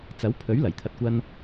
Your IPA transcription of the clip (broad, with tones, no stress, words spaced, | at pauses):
t͡sɐ˨˥wpʰɵ˨˥ɥ lɐ˨˩jt̪ʰɐ˧t̚kʷɐ˥n